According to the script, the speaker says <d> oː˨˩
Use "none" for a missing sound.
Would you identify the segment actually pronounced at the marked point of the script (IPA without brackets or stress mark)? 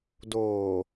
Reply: d